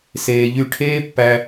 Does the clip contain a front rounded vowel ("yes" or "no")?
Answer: yes